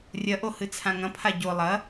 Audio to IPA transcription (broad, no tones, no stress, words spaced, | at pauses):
rʲɐʔo hɨt͡sʰãŋɐ̃pʰa ɟo lˠɐ